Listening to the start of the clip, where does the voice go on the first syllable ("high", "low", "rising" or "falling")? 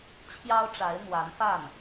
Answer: high